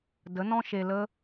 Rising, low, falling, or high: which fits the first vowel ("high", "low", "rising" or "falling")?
rising